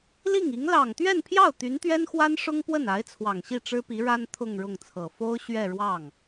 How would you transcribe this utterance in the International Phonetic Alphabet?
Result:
l i˥˩ ŋ i˧˥ ŋ l ɑ˨˩ ŋ t̪ ɥ ɛ˥˧ n pʰ j ɑ˥˩ ʊ̯ t̪ y˧˥ n t̪ ɥ ɛ˥ n x w a˥ n ʂ ʊ˥ ŋ p w ə˥˩ n a˧˥ ɪ̯ t͡sʰ w ɑ˨˩ ŋ ɕ i˥˩ ʈ͡ʂ ɻ̩˥ p i˧˥ ɻ a˥ n t̪ʰ ʊ˥˧ ŋ ɻ ʊ˥˩ ŋ t͡sʰ ɤ˨˩ f o˥ ʊ̯ ɕ ɥ ɛ˥˧ ɻ w ɑ˥˩ ŋ

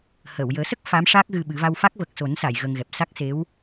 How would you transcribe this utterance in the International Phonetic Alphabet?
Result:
h əː˨˩˨ w j əː˨˩˦ s ə˦˥ k̚ f a˧˥ m ʂ a˦˥ k̚ ɣ ɨ˧ ɓ ɨ˨˩˦ v a˧ w f a˦˥ k̚ v ə˨˩ k̚ s o˨˩˦ n s a˨˩˨ j ɣ əː˧ ŋ ɣ ɛ˨˩ p̚ s a˦˥ k̚ s e˧˥ w

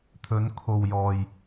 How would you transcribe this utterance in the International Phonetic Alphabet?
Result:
t̪ʰ ɵ˨˧ n kʰ o˨ w j ɔː˨ j

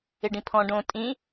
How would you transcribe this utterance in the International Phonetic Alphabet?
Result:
ɪ ɖ ĩ pʰ ɔ̃ ɖ õ tʼ ĩ

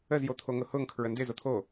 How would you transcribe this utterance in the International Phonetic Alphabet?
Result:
ə z j o t̪ʰ o ŋ ʊ h ʊ ŋ kʰ ɹ ə n d ɪ z o t̪ʰ o

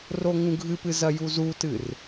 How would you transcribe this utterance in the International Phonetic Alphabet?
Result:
r o ŋ ũ ɡʱ ɨ p ɨ z ɐ j u z u t ɨ r

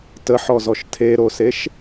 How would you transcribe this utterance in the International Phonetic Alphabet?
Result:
t ə ħ ɔ z ɔ ʃ tʰ e ɾ o s e ʃ

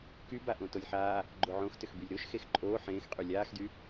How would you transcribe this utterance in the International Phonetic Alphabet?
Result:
k y b a ʔ õ t o lʲ ħ aː | ɡ͡ǃ o ʕ õ x t ʏ x b y lʲ ɾ o ʃ x e x ǃʼ oː ħ ẽː x qʼ y lʲ aː x d y

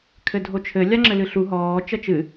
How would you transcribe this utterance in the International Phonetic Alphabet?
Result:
kʰ ɘ dʱ o t͡ʃʰ ɘ lʲ a ŋ͡ǁ ɘ l ɨ ɬ u ɦ ɔː t͡ʃ ɐ t͡ʃ ɨ

